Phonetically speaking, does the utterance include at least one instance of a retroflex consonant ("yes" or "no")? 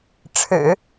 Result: yes